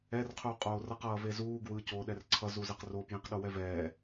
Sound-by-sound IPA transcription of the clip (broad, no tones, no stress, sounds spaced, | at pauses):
ɛ r qʰ u qʼ oː r ʌ q ʌː v e z uː ɡ w ɯ c oː ɗ ɛ r ǀʰ ʌ z u z ɛ q r o p j ĩ q ɗ o w ɛ v ɛː